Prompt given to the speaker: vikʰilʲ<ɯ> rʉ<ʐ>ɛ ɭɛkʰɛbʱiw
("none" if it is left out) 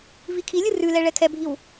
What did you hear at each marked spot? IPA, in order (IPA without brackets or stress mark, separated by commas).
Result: ɯ, l